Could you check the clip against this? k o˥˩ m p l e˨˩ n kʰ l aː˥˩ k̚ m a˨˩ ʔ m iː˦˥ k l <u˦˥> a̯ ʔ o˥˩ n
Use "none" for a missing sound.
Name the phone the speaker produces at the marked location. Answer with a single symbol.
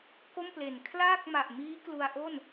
u˧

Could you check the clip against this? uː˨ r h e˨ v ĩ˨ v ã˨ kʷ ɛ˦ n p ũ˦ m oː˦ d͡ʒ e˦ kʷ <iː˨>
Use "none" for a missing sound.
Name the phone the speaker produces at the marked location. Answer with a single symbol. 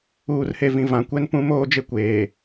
eː˨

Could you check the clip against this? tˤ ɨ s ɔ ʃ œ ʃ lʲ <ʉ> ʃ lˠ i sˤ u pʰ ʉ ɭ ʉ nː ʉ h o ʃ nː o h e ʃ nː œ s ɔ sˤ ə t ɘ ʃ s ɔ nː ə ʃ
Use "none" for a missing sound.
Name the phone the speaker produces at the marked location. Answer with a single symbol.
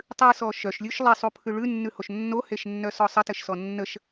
ʉ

